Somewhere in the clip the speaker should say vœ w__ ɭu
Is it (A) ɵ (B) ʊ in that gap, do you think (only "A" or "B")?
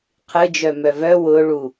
B